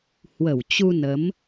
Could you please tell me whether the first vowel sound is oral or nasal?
oral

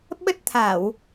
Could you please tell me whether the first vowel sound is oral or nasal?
oral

